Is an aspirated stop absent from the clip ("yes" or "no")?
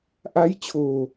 no